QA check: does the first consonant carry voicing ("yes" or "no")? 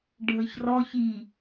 yes